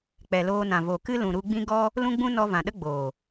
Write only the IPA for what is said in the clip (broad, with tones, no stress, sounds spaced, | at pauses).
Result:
k͡p ɛ˨ l oː˧ n ã˨ v o˨ k ɨ˦ l ũ˨ ɾ u˧ ɡ͡b ĩ˦ ɡ ɔ˦ | l ũ˦ ɡ͡b ũ˦ n ɔ˧ v ã˨ ɗ ə˦ ɡ͡b oː˨